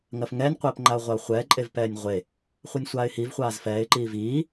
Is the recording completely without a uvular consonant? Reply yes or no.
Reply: no